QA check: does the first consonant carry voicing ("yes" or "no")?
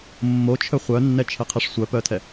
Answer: yes